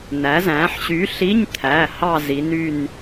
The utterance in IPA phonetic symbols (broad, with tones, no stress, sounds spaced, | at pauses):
n æ˩˧ z æ̃ː˩˧ ħ ɕ y˨˥ ɬ i˧˥˧ ɲ t̪ʰ æ˩˧˩ h ɑ˥˧ z i˩˧ n y˧˩ n